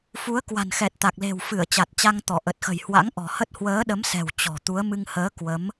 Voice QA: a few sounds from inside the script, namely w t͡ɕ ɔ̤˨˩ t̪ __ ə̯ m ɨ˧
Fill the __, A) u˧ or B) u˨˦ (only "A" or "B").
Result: B